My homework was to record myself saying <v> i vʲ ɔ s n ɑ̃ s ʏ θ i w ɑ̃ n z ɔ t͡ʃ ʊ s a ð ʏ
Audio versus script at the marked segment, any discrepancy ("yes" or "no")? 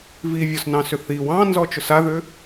no